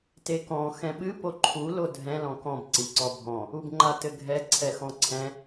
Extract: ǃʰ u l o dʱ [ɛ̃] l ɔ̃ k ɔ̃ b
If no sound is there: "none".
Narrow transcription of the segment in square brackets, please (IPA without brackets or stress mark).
ɛ̃